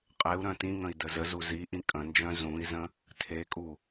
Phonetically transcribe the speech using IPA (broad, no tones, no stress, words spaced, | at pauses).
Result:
qʼeu̯ ɾœ̃tĩŋə̃i̯ dəzəzu ziʔĩ kʼə̃nd͡ʒœ̃ zũi̯zə̃ | tʰekʼu